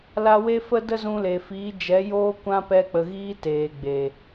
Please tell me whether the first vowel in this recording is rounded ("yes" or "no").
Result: no